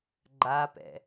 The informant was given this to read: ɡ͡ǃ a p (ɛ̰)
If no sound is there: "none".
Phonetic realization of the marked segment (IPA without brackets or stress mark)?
ɛ̰